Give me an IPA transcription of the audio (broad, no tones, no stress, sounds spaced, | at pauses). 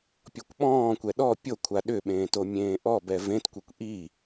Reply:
pʲ ɔ kʷ ɓ ɔ̃ː kʷ ɛ ɗ ɔ pʲ o kʷʰ a ɗ ʏ ɓ ẽː t o mʲ ẽː ʔ ɔ b ɛ v ẽ t kʷ e kʷ ʔ i